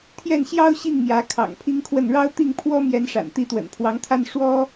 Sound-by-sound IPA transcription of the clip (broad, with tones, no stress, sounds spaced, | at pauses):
t̪ʰ j ɛ˥˩ n ɕ j ɑ˥ ʊ̯ ɕ i˥˩ ŋ m j ä˧˥ kʰ ɑ̰˨˩ ŋ pʰ i˥ ŋ kʰ w ə˥˩ n ɻ ɑ˥ ʊ̯ t̪ i˥˩ ŋ pʰ w ɔ˥ m j ɛ˥ n ʂ a̰˨˩ n t̪ i˥˩ t̪ w ə̰˨˩ n pʰ w ɑ˧˥ ŋ t̪ʰ a˥ n ʂ w ɔ˥